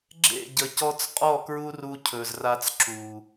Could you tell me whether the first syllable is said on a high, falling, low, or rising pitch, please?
falling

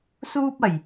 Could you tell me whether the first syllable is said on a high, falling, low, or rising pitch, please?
high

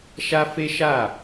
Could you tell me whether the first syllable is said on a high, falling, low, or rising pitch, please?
high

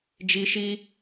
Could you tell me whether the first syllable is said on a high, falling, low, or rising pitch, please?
high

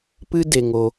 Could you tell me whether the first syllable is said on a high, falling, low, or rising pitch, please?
high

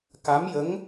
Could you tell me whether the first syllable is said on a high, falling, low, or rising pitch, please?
rising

